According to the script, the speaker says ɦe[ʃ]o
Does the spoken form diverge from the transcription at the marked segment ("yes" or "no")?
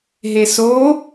yes